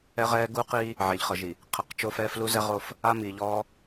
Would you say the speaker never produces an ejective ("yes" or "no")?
yes